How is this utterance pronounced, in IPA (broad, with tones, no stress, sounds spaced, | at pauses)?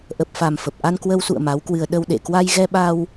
ʔ ə˨˩ p̚ f a˨˩ m f ə˨˩ p̚ ʔ a˧ n k w ə˧ w s ṵ˧˨ ə̯ m a˨˦ w k w ɨ˧ ə̯ ɗ ə˧ w ɗ ḛ˧˨ k w a˧ j ɣ ɛ˧ ɓ a˧ w